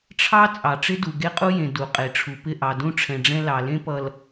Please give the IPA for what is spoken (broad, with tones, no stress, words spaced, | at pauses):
ʈ͡ʂʰɑ˦ t͡sʼɑ˨ʈ͡ʂɪ˦du˨ ɡe˦qʼu˦jẽ˨ du˨qʼe˨ʈ͡ʂʰu˨pɪ˦˨ ʔɑ˨dũ˦ʈ͡ʂʰɛ̃˨ɖ͡ʐɛ̃˦ lɑ˨lẽ˦pʌ˨l